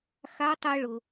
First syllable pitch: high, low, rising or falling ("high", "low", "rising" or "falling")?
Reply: rising